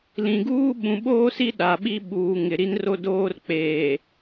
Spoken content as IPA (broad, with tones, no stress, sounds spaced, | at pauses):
l ĩ˨ ɡ uː˦ ɓ ũ˨ ɓ oː˦ s i˦ ɗ a˨ ɓ i˦ ɓ uː˨ ŋ ɪ˨ ɾ i˦ n r o˦ d oː˦ r k͡p eː˨